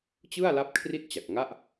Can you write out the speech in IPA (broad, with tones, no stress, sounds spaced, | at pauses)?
t͡ɕ ɯ˥˩ a̯ l a˦˥ p̚ kʰ r i˥˩ t̚ t͡ɕ a˨˩ k̚ ŋ a˥˩ ʔ